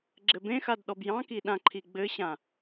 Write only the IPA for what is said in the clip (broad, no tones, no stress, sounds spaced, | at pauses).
ɡ͡ǁ ɘ b ẽ x a d ɗ ɔ b j ɑ̃ k i ɗ ã ǃʰ i ɡ͡b ɘ ɕ ã